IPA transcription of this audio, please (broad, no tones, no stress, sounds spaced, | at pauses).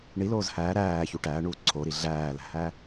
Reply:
ɳ i l oː z h æː ɾ æː ç u ʈ æː ɳ uː ǀʰ o ɾ i ɮ æː l æ̤ h æ